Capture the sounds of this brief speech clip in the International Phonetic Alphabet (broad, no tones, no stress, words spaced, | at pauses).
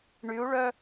ɳyu̯ɭœ